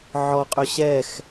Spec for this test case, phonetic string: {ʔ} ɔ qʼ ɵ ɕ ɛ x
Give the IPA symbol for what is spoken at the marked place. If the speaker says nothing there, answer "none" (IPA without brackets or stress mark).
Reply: ʕ